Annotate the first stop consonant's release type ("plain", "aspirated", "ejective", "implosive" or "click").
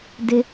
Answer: plain